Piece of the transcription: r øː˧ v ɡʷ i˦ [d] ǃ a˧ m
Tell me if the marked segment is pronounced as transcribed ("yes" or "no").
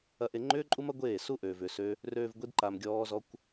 yes